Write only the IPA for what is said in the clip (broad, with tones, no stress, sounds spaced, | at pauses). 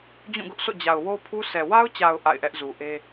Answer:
d͡ʑ ũ˦˨ ɡ ʊ˦ ʔ s o̰˦˨ d͡ʑ a˨ ʊ̯ w o˦ pʰ u˦ sʰ ɛ˨ w a˦ ʊ̯ t͡ɕ a˨ ʊ̯ ʔ a̰˦˨ ɪ̯ ʔ ɛ˦ ʔ z u˨ ʔ e˦